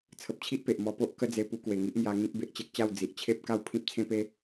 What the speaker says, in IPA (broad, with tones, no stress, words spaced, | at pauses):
t͡sʰə˨p̚t͡ɕʰi˦ʔpe˨ʔ mɔ˧po˦ʔkə˦d͡ze˧ pu˧kwe˨˩ŋi˦ʔmja˧ ŋĩ˦k̚be˨ʔt͡ɕe˦k̚t͡ɕa˥˧w d͡zi˨ʔt͡ɕʰe˦p̚ ka˥˧wpʰĩ˦p̚t͡sʰẽ˦pe˦